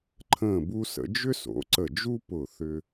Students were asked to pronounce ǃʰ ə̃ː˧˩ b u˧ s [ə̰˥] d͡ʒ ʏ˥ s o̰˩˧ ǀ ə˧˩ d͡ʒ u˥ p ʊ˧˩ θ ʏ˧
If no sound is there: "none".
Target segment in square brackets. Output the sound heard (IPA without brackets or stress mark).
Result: ə̰˩˧